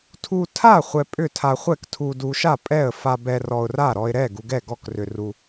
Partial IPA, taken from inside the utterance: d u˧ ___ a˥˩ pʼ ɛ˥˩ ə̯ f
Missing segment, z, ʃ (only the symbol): ʃ